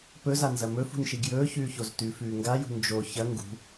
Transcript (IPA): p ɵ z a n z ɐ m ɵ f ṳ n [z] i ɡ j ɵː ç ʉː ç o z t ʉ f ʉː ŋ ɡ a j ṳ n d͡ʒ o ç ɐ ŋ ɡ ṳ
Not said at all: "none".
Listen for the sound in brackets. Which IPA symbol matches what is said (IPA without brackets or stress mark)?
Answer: ʃ